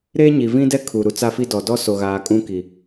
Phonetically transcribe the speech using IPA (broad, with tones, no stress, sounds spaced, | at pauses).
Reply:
ɾ eː˦ ɲ i˨ v ĩ˦ d ɛ˦ kʰ u˨ ɾ u˨ t͡s a˦ f i˦ d ɔ˨ d ɔ˦ s o˨ ɣ aː˨ kʼ ũ˦ k i˨